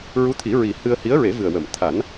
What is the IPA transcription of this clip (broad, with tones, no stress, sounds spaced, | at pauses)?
ɹ u˧˥ t̪ʰ i˨˩˦ ɹ i˨˩ h ɨ˧ ə̯ h i˧˥ ə̯ ɹ e˨˩˦ v ɨ˨˩ ə̯ w ə˨˩˨ m t̪ʰ a˨˩˦ n